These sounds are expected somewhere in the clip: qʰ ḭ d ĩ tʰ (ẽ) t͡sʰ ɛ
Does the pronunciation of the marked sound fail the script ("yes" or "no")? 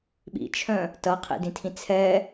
yes